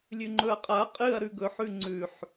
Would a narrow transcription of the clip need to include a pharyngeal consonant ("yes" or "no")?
yes